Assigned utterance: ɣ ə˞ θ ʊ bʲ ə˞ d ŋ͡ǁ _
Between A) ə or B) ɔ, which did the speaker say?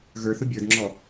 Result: B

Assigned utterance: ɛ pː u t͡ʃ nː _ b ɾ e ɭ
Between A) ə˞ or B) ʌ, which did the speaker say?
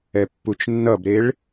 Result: B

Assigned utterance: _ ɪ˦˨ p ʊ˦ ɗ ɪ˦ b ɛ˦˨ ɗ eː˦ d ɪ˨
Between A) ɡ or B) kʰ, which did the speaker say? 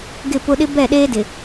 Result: A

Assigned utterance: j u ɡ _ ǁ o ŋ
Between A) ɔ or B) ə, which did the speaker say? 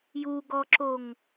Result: A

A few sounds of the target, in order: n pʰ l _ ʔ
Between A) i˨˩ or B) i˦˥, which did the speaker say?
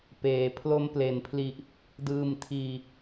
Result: A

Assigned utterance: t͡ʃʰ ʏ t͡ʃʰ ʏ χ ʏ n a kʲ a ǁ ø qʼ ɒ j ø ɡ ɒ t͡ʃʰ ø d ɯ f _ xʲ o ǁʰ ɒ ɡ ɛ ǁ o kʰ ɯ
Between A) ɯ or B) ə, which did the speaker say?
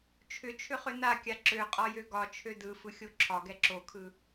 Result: A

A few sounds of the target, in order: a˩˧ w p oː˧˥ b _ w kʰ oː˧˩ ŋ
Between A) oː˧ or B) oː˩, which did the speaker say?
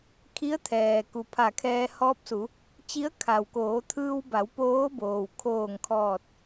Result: B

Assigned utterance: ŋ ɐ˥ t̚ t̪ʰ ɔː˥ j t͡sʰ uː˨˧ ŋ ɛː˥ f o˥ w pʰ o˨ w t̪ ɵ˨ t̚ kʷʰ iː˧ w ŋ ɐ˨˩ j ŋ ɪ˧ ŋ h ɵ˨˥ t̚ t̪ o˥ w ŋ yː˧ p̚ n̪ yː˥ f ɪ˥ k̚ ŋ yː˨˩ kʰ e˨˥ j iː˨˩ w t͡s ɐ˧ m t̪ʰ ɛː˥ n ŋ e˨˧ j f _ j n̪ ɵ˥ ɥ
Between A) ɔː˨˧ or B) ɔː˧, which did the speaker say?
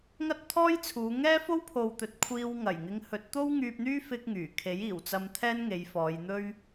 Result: A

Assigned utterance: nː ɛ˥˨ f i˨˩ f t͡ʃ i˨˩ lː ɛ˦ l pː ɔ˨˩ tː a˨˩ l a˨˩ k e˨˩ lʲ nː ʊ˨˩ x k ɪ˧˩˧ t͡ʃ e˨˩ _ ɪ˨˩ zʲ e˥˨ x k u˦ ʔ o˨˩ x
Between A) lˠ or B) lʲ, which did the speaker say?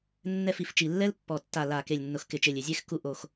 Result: B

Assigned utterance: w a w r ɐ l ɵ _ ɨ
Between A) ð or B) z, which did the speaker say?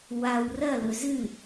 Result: B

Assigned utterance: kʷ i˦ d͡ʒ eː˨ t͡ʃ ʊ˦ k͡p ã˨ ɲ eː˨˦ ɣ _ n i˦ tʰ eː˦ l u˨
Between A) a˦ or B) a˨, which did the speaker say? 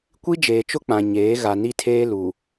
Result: B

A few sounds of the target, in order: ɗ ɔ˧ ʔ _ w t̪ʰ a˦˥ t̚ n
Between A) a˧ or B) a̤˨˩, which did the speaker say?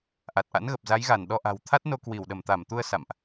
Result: B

